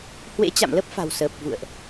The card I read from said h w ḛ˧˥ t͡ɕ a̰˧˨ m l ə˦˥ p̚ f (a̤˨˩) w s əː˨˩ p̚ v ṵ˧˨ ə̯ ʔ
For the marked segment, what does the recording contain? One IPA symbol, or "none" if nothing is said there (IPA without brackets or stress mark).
a̤˨˩